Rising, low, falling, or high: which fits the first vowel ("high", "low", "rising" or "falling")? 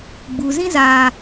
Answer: low